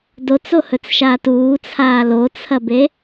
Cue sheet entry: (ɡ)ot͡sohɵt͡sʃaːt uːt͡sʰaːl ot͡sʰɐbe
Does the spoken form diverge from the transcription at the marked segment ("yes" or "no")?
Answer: yes